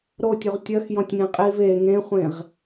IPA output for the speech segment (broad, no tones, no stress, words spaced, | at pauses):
ɾotʲuʁ tʲɜxjɔ̃tʲŋĩ qʼiv e ŋẽχʷẽʁ